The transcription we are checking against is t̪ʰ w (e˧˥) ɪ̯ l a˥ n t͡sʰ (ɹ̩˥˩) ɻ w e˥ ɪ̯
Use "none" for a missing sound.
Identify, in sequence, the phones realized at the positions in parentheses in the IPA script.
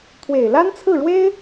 e˨˩, ɹ̩˥˩

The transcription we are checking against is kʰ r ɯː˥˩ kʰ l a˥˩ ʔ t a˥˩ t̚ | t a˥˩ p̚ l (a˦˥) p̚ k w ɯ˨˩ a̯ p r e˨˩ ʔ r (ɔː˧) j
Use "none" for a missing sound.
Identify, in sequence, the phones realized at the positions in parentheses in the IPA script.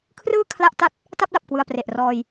a˨˩, ɔː˧

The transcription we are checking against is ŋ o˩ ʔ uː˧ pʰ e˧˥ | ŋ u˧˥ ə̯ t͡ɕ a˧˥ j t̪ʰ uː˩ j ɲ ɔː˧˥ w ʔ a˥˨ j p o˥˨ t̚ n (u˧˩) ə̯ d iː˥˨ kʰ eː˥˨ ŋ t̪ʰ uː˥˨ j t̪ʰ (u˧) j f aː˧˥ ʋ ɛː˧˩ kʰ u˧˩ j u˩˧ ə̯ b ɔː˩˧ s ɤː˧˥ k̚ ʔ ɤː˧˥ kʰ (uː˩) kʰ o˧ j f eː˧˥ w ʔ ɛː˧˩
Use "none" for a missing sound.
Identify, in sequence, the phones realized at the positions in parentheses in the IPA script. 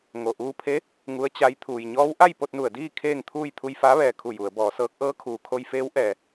u˧˩, u˧, uː˩

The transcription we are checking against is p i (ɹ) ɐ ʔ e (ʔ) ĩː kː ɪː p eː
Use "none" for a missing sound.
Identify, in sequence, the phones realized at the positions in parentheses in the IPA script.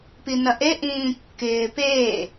n, ʔ

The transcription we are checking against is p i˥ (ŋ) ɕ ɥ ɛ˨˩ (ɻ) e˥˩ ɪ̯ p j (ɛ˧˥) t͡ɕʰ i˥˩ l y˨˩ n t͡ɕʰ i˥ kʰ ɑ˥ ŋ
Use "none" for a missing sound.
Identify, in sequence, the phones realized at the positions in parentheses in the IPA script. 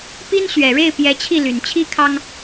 n, ɻ, ɛ˧˥

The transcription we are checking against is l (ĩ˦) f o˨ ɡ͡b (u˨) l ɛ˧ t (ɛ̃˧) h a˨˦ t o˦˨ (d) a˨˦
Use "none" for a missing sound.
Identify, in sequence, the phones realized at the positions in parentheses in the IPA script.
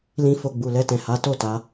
ĩ˨, u˨, ɛ̃˨, t

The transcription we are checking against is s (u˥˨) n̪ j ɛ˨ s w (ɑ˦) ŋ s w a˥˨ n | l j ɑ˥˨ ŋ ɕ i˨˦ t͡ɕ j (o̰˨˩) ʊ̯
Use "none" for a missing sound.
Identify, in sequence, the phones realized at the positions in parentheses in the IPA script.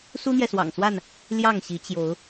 u˦, ɑ̰˨˩, o˨˦

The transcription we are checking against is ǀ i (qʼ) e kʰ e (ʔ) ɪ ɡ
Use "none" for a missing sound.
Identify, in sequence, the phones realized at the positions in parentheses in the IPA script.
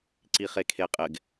χ, qʼ

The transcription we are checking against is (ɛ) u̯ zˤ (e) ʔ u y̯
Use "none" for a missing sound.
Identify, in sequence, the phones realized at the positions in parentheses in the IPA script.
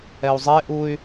ɛ, e

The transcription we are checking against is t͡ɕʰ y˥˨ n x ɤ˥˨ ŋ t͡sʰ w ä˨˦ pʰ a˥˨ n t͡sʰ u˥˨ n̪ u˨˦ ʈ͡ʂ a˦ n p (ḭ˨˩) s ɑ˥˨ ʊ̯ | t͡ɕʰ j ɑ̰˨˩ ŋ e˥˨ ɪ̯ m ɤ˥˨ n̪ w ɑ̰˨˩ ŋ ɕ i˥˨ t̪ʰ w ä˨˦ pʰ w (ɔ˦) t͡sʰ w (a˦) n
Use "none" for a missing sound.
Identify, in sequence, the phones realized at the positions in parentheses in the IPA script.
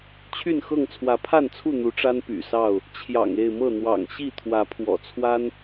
y̰˨˩, ɔ̰˨˩, a˦

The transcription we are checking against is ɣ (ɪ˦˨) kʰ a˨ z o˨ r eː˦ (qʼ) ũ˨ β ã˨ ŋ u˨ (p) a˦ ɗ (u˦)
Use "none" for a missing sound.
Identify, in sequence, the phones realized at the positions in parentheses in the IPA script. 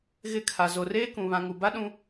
ɪ˦˨, k, b, ũ˦

